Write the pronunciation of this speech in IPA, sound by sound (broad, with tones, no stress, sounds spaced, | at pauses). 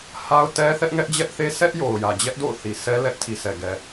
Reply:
h a˦ ʊ̯ t ɛ˦ θ ɛ˦ ʔ ŋ ɛ˦ ʔ d͡ʑ ɛ˦ ʔ θ e˦ sʰ ɛ˦ ʔ j o˨ ʊ̯ j ä˨ d͡ʑ ɛ˦ ʔ d o̰˦˨ ʊ̯ θ i˨ s ɛ˦ l ɛ˦ ʔ tʰ i˨ sʰ ɛ˨ ɡ ɛ˨